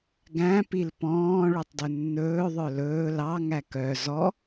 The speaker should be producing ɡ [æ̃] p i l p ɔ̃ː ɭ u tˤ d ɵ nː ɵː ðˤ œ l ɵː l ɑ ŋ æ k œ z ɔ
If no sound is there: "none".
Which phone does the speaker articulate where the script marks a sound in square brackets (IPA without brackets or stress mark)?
æ̃